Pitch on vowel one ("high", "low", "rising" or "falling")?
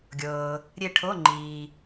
low